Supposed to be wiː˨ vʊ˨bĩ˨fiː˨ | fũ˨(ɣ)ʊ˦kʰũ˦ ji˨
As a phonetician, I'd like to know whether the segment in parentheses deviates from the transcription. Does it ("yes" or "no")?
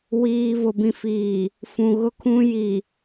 no